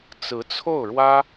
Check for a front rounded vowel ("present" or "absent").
absent